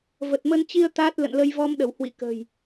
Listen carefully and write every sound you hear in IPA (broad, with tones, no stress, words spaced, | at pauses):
və˨˩t̚mə˧nt͡ɕi˧ə̯ t̪aː˦˥t̚ lə̰˧˨nlə˧jvɔ˧mɗə˧˩w hwḭ˧˨kə̤˨˩j